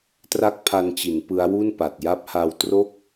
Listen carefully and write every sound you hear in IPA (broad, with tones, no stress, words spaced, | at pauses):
tra˦˥k̚pʰa˧nt͡ɕi˩˦n pɯ˦˥a̯wu˥˩npa˨˩t̚ ja˦˥p̚ha˧wtro˥˩k̚